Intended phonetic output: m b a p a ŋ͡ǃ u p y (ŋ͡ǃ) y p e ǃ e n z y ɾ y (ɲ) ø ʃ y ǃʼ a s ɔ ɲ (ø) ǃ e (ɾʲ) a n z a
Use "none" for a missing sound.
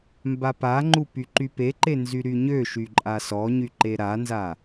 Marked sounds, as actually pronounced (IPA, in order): ǃ, ɲ, y, ɾ

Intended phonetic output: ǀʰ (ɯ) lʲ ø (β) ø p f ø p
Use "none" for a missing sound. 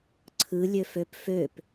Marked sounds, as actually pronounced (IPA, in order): ɯ, f

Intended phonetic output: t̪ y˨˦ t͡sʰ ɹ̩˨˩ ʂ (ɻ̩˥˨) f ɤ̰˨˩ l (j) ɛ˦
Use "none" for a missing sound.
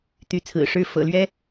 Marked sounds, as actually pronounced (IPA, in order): ɻ̩˥˨, ɥ

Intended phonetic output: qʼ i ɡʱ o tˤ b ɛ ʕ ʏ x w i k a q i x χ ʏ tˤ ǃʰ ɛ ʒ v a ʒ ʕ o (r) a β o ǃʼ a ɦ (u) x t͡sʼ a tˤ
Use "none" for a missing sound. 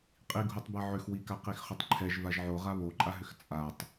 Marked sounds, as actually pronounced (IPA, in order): ʁ, ʏ

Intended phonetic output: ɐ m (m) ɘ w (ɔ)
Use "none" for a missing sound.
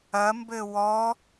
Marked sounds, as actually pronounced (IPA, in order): b, ɔ

